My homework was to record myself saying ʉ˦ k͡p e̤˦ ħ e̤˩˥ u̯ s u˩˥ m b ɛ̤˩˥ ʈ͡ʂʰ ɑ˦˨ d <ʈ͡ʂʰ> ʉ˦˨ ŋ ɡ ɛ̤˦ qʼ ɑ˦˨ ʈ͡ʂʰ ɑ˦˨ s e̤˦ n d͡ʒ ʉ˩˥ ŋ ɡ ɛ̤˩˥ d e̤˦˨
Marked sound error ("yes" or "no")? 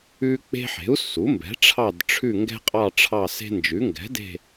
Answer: no